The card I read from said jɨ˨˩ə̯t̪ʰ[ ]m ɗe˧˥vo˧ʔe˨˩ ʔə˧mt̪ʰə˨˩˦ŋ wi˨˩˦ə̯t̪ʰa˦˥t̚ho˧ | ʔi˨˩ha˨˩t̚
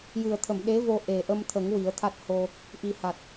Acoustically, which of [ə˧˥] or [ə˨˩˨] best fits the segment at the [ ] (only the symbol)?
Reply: ə˨˩˨